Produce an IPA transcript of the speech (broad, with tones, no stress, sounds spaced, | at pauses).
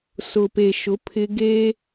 s ʊ˨ p e˨ ʃ ʊ˨˦ pʰ ɪ˦ ɡ e˦